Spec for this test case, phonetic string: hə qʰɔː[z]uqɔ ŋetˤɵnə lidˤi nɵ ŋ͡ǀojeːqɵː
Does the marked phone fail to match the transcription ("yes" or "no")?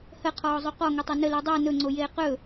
yes